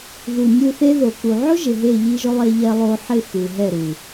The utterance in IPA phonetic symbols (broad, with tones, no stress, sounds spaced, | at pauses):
ð u˨ nʲ u˧ θ e˦ ð o˨ k u˨ ʕ ʊ˦ ʒ ɪ˨ ɦ e˦˨ ʎ i˦ ʒ ʊ˦ lˠ e˧ ʎ ɛ˧ lˠ o˧ ħ ɪ˦˨ x u˨ ɦ ɛ˦˨ ɾ u˨